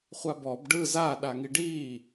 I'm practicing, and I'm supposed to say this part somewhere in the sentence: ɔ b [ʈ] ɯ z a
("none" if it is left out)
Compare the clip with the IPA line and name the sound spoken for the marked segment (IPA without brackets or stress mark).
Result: ɖ